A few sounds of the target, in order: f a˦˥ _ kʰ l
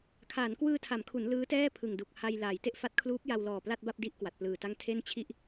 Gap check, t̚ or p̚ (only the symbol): t̚